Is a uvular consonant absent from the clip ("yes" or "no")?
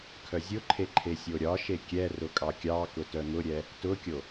yes